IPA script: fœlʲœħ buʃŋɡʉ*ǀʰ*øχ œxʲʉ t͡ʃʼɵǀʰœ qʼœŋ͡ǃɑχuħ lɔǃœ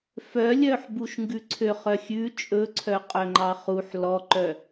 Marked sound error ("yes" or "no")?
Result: no